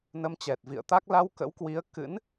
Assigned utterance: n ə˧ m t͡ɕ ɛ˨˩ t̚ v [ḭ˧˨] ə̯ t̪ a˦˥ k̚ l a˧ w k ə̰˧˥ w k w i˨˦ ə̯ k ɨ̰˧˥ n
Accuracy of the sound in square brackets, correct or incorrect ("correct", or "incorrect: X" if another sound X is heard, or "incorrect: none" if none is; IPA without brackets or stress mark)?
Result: correct